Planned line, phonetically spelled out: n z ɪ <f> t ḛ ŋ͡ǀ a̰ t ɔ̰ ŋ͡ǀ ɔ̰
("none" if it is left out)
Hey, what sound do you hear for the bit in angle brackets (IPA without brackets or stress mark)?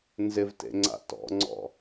v